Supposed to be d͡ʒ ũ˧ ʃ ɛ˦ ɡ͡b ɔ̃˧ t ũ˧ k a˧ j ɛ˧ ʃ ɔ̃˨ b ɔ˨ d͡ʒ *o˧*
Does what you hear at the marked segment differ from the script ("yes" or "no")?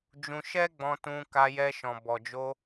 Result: no